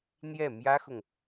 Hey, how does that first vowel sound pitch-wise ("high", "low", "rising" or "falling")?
falling